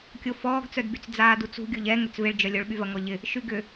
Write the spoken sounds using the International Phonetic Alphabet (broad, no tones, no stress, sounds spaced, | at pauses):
kʲ o f ɔː ɡ t͡s œ d b y t͡s d͡z aː d u t͡s ṳ ɡʲ o ʎ ɛ ŋ ʏ t͡s v ɪ ɭ d͡ʒ œ lʲ o ɭ ɓ y v ɐ ŋ ɔ ʎ ɪ | ʃ y ɡ ʏ